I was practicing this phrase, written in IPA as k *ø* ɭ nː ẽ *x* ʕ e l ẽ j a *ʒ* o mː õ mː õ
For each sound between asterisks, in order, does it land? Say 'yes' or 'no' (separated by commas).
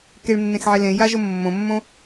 no, yes, yes